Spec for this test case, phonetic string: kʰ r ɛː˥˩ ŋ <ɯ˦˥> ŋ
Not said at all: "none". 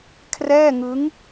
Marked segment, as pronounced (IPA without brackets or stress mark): ɯ˦˥